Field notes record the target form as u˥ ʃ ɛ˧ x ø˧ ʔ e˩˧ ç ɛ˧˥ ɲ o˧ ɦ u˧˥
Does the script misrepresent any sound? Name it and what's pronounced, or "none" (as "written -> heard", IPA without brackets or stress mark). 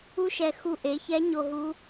ø˧ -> u˧